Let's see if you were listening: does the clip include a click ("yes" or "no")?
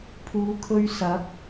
no